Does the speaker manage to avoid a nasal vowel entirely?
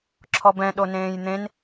no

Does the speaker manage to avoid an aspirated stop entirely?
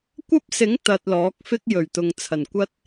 no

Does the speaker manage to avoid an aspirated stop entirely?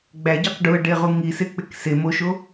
yes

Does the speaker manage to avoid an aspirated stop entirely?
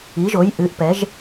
yes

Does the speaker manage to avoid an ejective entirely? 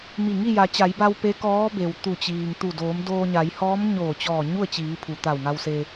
yes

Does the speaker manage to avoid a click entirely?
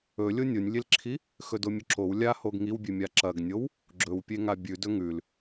no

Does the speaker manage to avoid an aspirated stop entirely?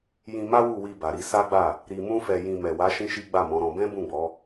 yes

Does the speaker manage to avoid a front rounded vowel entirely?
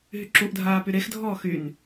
no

